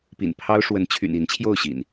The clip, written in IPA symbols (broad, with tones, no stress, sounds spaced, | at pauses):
p ḭ˨˩ n pʰ ɑ˦ ʊ̯ ʂ w ə˨˦ n t͡ɕʰ y̰˨˩ n i˨˦ n t͡ɕʰ j o˥˨ ʊ̯ ɕ ḭ˨˩ n